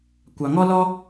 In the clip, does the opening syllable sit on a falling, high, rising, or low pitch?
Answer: low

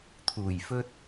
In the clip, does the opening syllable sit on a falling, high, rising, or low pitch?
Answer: low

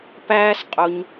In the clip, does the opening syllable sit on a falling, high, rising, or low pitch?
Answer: high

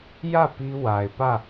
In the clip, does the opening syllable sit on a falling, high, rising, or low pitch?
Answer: falling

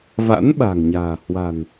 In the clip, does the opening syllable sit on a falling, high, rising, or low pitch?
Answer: rising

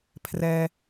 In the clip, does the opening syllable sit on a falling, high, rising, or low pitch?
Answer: high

